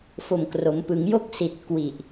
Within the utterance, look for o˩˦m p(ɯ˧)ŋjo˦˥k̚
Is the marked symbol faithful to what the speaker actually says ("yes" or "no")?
no